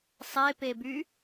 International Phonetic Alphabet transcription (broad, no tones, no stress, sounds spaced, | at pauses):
sˤ e p e b y